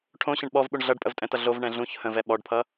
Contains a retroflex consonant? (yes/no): yes